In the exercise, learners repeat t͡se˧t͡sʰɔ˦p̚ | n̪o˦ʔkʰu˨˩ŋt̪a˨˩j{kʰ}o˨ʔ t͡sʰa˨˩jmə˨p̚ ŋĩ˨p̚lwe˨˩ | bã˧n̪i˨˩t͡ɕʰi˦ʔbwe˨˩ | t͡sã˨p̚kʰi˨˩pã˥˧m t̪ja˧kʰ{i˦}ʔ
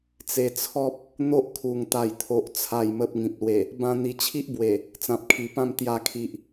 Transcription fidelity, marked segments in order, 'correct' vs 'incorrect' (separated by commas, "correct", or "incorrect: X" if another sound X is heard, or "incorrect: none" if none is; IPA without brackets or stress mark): incorrect: t̪ʰ, incorrect: i˨